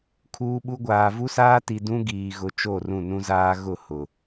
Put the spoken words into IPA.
kʰ uː˦ ɓ u˦ ɡʷ aː˨ v u˦ s aː˦ t i˨ d ũ˦ ɡ iː˨ ɣ ʊ˨ t͡ʃ o˦˨ r ũ˦˨ n ũ˦ z aː˦ ɣ ʊ˦˨ h ʊ˨

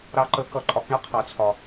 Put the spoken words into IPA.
ɾ ɑ˧ ǃ ə˨˦ k ʌ˨ ǃʼ ɒ˧ k ɳ ʌ˦ qʰ ɑ˨ t͡sʰ ɒ˨

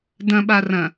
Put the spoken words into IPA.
d ɐ̃ ɓ a r ɐ̃

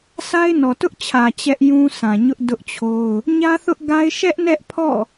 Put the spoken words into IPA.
s a˦ ɪ̯ n ɔ˨ t ʊ˦ ʔ t͡ɕʰ ä˨ t͡ɕ ɛ˦ ʔ j ũ˦ s ã˨ ɲ ʊ˦ ʔ d ʊ˦ ʔ t͡ɕʰ o˦ ʊ̯ | ɲ ä˦ θ ʊ˦ ʔ ɡ a˦ ɪ̯ ʃ ɛ˦ ʔ n ɛ˦ ʔ pʰ ɔ̰˦˨

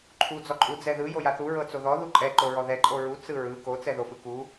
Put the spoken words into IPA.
ǃʰ u d͡z ɔ ǃʼ u d͡z ɛ ð ɯ j o j a θ u ɹ ɤ t͡s o ð ɔ ð u ǃʼ ɛ ǃ o ɹ ɔ ð ɛ ǃʼ o ɹ u t͡s ɯ ɹ ɯ k o t͡s ɛ ð o f ɯ k u

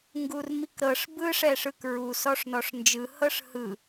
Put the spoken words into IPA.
ŋ ɡ u r m i k ɾ ɤ ʂ b ɯ ʂ ɛ ʂ ɯ k ɹ u s ɔ ʂ n ɔ ʂ n d͡ʒ ɯ h ɤ ʂ h ɯ

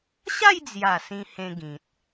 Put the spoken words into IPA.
ɕ a˥˧ j d͡z j a˨˩ s ĩ˧ h ẽ˧ ɡ ĩ˨ t̚

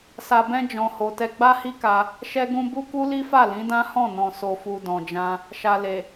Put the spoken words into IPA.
s a˧ b ɛ̃˦ d͡ʒ ɔ̃˧ h o˧ t ɛ˦ ɡ͡b a˦ h i˦ k a˧ | ʃ ɛ˧ ɡ ũ˧ b u˦ k u˦ l i˦ f a˦˨ l ĩ˨˦ d ã˦ h ɔ̃˦˨ n ɔ̃˨ s o˨ f u˨ d ɔ̃˨ d͡ʒ ã˧ | ʃ a˨ l e˨

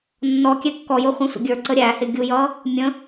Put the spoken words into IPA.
nː ɔ kʲ ɛ kː ɔ j ʊ χʷ ɛ̃ sʷ ə̰ ɡʲ ə˞ ǀ ə ɾʲ æ h ɪ ɡʲ u j ʌ | mʲ ə̃

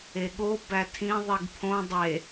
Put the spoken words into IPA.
e ɠ o b æ tʰ ĩ ðˤ i ɡ pʰ õ dˤ e

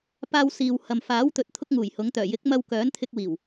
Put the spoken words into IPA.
p aː˧ w s iː˨ w h ɐ˨ m f aː˨˥ w t̪ ɵ˨˥ t̚ t̪ʰ ʊ˥ k̚ ŋ uː˨˩ j h ʊ˨˥ ŋ t̪ œː˨˩ j ɪ˨˥ k̚ m ɐ˧ w k œː˨˥ n t̪ʰ ɪ˧ k̚ w iː˨˩ w

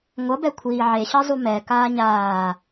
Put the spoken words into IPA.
ŋʷ ʌ b ɛ kʷʰ iː ʕ e ɕ ʌ zˤ u m ɛ k aː ɲ aː

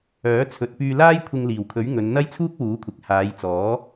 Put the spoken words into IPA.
œː˨˥ t͡sʰ ɵ˨ t̚ p yː˧ l aː˥ j kʷʰ ɪ˧ ŋ l iː˨˩ w kʰ ɵ˨˥ ɥ ŋ ɵ˨˧ n n̪ ɐ˥ j t͡sʰ uː˥ k̚ w uː˨˥ kʷʰ ɪ˨ k̚ h aː˨˧ j t͡s ɔː˨˥

